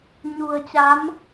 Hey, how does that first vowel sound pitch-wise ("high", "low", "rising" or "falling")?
low